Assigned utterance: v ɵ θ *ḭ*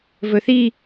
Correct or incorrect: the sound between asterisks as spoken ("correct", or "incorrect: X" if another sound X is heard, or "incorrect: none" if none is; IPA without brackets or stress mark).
incorrect: i